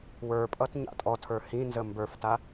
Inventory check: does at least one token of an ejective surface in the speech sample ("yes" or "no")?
yes